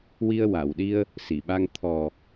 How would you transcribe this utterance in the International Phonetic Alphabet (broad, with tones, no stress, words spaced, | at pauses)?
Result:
wi˧ə̯wa˨˩˨wɗi˧ə̯ | si˨˩˨ɓa˧ŋ t̪ʰɔ˨˩